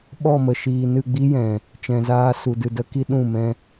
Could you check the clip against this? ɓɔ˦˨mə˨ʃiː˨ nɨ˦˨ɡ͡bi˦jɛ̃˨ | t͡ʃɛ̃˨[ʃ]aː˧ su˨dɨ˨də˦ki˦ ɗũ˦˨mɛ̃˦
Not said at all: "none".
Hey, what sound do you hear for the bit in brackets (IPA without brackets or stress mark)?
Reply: z